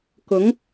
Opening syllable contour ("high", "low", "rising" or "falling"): rising